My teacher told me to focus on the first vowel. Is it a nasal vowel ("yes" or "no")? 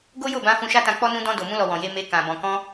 no